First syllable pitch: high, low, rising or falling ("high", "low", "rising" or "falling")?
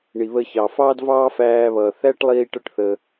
low